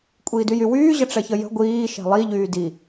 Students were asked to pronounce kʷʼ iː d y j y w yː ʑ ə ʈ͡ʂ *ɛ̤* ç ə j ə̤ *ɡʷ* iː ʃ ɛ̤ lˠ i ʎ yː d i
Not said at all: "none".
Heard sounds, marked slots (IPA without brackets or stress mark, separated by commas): ɛ, ɡʷ